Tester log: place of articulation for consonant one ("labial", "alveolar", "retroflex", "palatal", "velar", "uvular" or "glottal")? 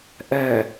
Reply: glottal